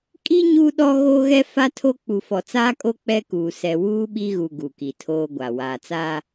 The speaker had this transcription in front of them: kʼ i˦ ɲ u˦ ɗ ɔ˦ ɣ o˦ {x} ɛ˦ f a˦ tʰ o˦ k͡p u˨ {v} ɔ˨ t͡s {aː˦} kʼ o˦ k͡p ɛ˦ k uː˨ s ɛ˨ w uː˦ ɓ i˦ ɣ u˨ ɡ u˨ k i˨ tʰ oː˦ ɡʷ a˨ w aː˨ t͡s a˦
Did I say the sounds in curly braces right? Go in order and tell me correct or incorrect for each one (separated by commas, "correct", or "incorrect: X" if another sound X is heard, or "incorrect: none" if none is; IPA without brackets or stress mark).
incorrect: ɣ, incorrect: f, correct